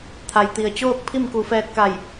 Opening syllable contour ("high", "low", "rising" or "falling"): low